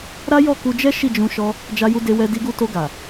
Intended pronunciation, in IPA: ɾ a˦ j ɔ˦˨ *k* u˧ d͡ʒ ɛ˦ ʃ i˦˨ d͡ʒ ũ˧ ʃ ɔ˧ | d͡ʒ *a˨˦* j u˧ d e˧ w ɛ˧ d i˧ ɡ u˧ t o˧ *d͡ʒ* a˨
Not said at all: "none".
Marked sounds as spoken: k, a˧, ɡ

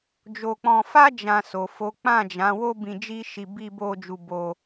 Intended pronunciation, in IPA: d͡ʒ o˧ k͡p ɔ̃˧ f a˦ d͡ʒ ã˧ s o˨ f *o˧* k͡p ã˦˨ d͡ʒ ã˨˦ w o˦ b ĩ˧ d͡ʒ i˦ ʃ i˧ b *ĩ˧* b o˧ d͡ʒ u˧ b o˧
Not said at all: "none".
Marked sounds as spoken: o˨˦, i˧

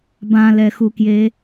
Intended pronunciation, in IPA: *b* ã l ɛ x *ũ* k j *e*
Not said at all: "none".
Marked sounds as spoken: b, u, e

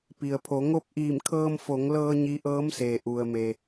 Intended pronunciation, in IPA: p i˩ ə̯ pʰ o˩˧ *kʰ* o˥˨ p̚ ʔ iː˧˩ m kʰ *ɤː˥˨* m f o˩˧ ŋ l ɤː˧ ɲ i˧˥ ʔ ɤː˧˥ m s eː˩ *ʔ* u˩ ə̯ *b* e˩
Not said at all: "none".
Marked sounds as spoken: ŋ, ɤː˧, ʔ, m

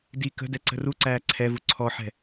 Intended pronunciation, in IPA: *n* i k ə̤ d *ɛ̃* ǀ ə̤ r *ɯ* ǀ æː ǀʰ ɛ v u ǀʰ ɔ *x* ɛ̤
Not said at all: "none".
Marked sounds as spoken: d, ɛ, u, ħ

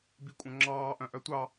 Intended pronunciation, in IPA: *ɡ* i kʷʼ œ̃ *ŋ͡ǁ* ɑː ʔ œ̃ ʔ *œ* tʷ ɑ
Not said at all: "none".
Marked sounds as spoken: b, ŋ͡ǁ, œ

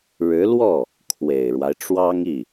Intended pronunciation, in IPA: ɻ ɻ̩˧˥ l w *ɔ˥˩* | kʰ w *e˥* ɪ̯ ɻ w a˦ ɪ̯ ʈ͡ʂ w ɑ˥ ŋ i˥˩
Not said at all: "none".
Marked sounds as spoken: ɔ˥˩, e˨˩

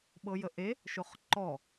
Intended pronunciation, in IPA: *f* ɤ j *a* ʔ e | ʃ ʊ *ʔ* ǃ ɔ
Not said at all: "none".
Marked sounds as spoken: ɓ, ə, χ

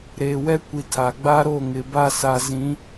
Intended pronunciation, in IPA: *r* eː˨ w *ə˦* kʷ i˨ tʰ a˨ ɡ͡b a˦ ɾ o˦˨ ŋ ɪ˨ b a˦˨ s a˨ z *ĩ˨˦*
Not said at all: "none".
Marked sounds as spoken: ɾ, ɛ˦, ĩ˨˦

